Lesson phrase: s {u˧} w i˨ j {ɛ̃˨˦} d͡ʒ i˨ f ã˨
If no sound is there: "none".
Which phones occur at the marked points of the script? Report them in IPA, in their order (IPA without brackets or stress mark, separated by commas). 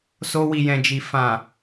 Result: o˧, ɛ̃˨